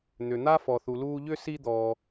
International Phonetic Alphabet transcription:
n̪ ʏ˩ n̪ a˥ f ɔ˩ θ u˩ l uː˧ ʎ ʏ˥˧ s i˧ d̪ ɔː˩

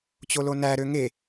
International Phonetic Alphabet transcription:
t͡ɕ o l o n æ ɾ ø ŋ e

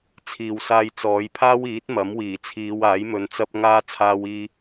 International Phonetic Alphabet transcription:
t͡sʰ iː˨ w s aː˧ j t͡s ɔː˨˧ j pʰ aː˥ w iː˨˥ t̚ m ɐ˨˥ m w iː˨˩ t͡sʰ iː˨˧ w aː˨˥ j m ɵ˨ n t͡s ɐ˧ p̚ ŋ aː˧ t͡sʰ aː˧ w iː˧

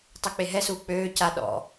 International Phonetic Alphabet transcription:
tˤ ø k͡p e ɦ ɛ s uː k͡p øː c a ɗ ɔ̰

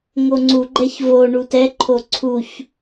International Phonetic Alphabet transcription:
ŋ o ŋ͡ǀ u ɡ͡ǃ ɛ ç v o ɳ u t ɛ ǃʰ o ǀʰ u ç

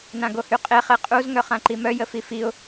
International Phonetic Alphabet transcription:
n ã ɡ o h y qʼ e χ e qʼ u z ŋ œ χ ã ǃ i m œ j ə f i f i ʊ̯

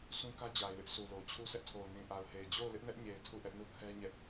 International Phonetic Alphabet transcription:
sʰ ũ˦ k ä˦ d͡ʑ a˨ ɪ̯ w ɪ˦ ʔ sʰ u˨ l o˨ t͡ɕʰ u˦ sʰ ɛ˦ ʔ tʰ o˨ ʊ̯ n ĩ˨ ʔ a˨ ʊ̯ h e˨ ɪ̯ d͡ʑ o˦˨ ʊ̯ l ɪ˦ ʔ n ɛ˦ ʔ ɲ e˨ ɪ̯ tʰ u˦˨ ʔ ɛ˦ ʔ n u˦˨ kʰ ɛ˦ ɲ ɛ˦ ʔ

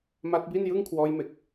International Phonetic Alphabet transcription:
m a˦˥ t̚ b i˥˩ n j ɯ˥˩ ŋ kʰ w ɔː˦˥ j m e˨˩ k̚

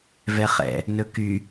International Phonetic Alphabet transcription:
v ɛ χ ɛ̰ | n ɵ k y

